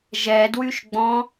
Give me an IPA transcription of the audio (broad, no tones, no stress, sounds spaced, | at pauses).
ʒ ɛ d w y ʃ ɡ͡b ɔ̃